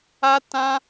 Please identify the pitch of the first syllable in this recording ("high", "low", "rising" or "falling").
high